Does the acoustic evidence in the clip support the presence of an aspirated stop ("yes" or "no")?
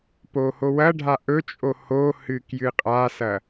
no